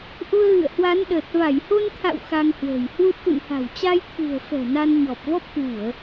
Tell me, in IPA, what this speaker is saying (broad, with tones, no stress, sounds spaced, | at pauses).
ʔ u˧ ə̯ ɣ ɨ̰˧˨ ə̯ h w a˨˦ n ɗ əː˨˩ t̚ v a˧˩ j h o˧ n t̪ʰ a̰˧˨ w x a˧ ŋ h w ə̤ː˨˩ j h w u˦˥ t̚ t̪ ṵ˧˨ n h a̤˨˩ w t͡ɕ a˧ j t̪ʰ ɨ̤˨˩ ə̯ f ɛ̤˨˩ n a˧ n ɲ ɔ˨˩ p̚ v ɔ˦˥ p̚ k w u˧˩˨ ə̯